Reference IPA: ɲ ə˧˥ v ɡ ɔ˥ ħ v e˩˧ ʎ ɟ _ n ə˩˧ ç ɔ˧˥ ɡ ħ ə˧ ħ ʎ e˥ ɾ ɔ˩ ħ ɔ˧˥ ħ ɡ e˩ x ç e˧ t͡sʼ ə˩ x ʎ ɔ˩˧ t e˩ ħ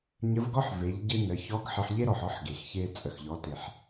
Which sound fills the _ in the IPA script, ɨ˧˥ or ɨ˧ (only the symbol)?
ɨ˧